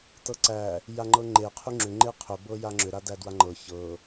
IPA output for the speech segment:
tɤǀæ | jaŋ͡ǃɤŋ͡ǃe qʰyŋ͡ǁʏ ŋ͡ǃeqʰʏ bɤjaŋ͡ǁʏ ɾadædwaŋ͡ǃɤ çɤ

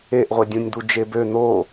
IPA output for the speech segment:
eʔʁʷe dʲũnʲd̪ud͡ʒebø n̪o

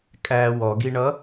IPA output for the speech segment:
kʼæ wɔɡiɳʌ

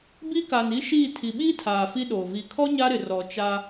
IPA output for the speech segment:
bi˦ka˨ni˦ʃiː˦˨ tʰi˨ɓiː˦tʰaː˨ fi˦ɗoː˨ vi˨kʰɔ˦ ɲa˦ɾɪ˨ rɔ˨t͡ʃa˦

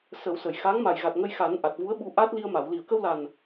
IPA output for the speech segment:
sə˨˩˦wsə˨˩˨j xa˧˥ŋ ma˨˩jɣa˨˩t̚ŋə˧jxa˨˩˦n ʔa˨˩t̚vu˧˥ə̯ɓu˧ ʔa˦˥t̚li˧ə̯ma˨˩˨w li˨˩˨ə̯kə˧wla˨˩n

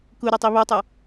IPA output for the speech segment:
kuɾɐtˤi βotˤɐ

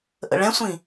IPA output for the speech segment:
ʔə̰ɭɛ̃sʷĩ

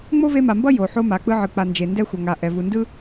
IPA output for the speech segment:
ŋ͡mo˥ve˦ma˨mbʌ˥ jo˩ ħo˦ma˩ k͡pɯ˦ʕɯ˨k͡pa˨nd͡ʒe˨ ndɛ˥xʷʌ˨ŋa˨ ʔɛ˩vu˨ndɯ˥

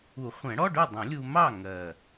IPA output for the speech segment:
u˨˩˦χʷɛ̃˨˩˦ɽɔ˧˥˧ɖʊ˥˨ dˤə̃˨˩˦lʲu˧mɑ˥˨ ŋɜ˨˩

